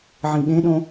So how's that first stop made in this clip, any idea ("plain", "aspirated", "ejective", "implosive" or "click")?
implosive